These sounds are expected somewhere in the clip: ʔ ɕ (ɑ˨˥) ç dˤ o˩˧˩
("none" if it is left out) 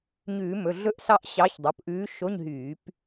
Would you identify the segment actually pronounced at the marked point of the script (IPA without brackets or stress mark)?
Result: ɑ˨˥